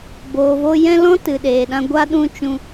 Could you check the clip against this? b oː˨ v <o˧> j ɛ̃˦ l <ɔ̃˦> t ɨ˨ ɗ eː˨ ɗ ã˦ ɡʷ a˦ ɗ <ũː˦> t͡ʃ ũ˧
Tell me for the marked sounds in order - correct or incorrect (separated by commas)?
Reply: correct, correct, incorrect